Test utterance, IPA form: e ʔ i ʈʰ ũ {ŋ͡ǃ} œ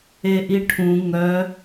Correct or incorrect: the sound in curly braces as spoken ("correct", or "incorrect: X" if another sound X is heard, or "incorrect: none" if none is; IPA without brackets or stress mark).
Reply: incorrect: ŋ